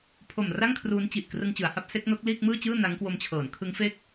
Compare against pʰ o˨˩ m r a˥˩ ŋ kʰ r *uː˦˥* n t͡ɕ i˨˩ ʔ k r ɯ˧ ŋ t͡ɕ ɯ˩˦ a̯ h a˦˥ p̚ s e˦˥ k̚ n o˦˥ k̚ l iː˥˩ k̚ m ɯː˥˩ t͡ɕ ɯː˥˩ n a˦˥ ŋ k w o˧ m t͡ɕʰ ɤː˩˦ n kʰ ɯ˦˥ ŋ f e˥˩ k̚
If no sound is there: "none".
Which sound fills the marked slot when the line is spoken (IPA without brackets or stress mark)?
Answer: uː˦˥